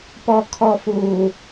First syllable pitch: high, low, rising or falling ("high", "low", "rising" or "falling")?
low